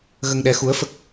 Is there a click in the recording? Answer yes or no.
no